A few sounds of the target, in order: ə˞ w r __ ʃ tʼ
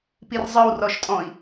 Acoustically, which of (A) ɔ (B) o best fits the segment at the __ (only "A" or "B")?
A